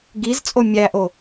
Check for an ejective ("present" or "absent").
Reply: present